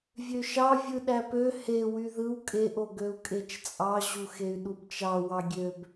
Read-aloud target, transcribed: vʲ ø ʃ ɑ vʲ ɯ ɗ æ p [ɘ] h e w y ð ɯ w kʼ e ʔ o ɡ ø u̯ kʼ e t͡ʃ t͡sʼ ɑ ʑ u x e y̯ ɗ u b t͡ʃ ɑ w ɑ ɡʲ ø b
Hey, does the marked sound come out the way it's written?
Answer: no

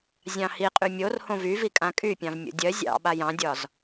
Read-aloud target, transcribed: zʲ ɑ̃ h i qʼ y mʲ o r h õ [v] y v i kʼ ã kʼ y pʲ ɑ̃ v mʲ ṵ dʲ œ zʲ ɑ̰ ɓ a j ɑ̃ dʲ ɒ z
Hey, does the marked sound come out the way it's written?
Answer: yes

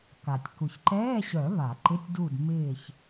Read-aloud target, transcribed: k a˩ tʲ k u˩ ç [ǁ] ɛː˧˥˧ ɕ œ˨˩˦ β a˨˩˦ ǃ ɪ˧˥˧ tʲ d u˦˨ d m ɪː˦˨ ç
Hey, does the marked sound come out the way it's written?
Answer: no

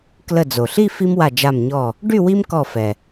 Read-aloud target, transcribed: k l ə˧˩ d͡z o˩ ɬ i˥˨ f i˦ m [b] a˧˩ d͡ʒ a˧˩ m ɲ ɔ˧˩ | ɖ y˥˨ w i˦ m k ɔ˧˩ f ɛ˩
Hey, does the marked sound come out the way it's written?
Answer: no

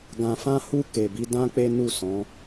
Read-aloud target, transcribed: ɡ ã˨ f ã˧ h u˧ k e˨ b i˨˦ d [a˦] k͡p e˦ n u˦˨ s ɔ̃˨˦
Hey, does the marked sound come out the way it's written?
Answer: no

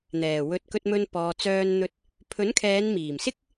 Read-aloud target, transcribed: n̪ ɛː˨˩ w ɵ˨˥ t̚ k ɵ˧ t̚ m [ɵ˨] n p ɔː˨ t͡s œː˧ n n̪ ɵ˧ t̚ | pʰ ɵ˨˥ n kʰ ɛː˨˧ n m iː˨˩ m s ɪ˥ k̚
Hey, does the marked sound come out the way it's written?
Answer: no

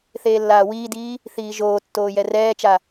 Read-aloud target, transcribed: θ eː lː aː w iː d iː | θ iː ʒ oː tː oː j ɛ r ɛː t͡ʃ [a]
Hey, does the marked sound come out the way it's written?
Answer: yes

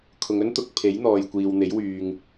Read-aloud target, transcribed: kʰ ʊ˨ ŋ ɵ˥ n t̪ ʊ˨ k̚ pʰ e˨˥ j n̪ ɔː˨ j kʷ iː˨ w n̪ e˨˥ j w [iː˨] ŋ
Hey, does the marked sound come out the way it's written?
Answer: no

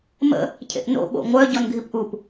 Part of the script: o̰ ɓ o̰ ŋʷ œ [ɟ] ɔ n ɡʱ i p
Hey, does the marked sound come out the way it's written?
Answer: yes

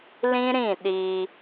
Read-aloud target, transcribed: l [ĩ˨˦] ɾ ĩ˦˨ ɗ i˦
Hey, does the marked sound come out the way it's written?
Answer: no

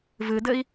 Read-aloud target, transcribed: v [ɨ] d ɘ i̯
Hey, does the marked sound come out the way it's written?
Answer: yes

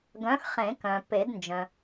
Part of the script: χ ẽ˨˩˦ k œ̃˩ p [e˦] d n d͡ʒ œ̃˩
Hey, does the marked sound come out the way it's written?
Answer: no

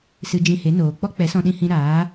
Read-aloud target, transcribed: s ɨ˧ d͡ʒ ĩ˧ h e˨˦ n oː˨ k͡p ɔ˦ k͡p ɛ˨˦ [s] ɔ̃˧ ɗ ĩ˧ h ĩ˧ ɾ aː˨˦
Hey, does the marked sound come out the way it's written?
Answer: yes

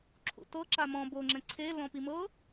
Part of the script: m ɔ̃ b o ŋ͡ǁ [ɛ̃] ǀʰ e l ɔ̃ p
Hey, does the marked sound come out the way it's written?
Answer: yes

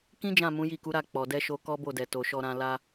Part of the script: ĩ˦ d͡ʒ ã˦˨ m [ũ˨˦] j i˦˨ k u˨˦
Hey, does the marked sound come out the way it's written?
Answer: yes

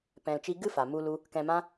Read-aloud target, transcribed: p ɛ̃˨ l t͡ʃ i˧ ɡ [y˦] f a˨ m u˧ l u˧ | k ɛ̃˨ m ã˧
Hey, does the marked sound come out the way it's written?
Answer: no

